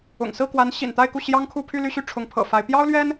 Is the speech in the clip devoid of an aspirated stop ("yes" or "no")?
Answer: no